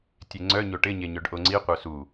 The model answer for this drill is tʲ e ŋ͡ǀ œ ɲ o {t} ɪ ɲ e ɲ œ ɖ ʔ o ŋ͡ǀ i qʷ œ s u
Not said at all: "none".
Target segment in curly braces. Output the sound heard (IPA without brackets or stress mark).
ʈ